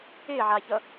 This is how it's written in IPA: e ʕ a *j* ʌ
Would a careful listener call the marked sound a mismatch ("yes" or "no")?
yes